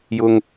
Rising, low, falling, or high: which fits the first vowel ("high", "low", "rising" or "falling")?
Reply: low